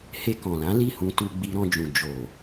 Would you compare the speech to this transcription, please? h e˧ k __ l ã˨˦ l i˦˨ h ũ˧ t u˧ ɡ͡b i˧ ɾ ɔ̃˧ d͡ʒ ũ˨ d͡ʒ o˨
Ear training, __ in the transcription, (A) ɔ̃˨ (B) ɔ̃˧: A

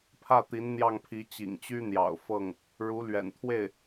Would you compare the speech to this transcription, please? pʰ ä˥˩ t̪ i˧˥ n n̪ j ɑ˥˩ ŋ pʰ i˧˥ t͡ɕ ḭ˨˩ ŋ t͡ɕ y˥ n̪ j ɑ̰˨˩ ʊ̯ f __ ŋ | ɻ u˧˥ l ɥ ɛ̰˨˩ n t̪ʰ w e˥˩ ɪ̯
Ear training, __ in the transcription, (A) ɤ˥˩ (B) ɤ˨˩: A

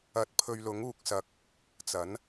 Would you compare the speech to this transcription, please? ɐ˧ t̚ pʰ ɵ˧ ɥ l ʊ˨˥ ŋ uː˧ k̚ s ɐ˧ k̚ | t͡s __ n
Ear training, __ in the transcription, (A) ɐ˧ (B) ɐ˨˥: B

